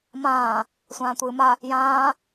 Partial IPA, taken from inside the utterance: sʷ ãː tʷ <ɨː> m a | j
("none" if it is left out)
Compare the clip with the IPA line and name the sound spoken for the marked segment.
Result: ɨː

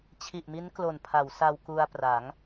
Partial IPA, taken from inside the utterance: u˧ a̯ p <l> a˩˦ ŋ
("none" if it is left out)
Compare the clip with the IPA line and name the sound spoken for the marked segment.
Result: r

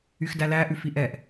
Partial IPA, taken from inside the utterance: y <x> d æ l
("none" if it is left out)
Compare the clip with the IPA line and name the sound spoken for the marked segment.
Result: x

